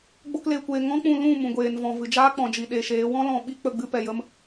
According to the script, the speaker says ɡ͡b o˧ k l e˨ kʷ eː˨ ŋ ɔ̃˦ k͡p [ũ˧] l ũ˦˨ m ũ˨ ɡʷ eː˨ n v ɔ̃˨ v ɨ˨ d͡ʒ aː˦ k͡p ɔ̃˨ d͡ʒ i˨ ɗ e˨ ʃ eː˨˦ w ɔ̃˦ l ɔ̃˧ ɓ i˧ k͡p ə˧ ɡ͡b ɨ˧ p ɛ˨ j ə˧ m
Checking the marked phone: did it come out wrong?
no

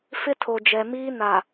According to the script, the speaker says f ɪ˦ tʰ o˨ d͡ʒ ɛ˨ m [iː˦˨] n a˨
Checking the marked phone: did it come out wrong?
yes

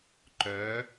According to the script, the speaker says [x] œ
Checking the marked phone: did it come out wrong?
yes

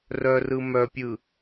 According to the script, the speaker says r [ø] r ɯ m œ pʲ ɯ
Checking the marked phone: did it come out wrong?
yes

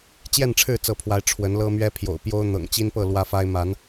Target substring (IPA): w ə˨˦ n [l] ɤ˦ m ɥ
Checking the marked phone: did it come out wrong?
no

